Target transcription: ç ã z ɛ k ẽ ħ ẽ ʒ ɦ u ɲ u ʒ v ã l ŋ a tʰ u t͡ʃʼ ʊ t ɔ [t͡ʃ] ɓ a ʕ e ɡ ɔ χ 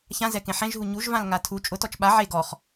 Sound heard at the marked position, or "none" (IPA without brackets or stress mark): t͡ʃ